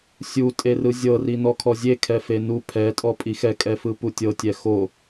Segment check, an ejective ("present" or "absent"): present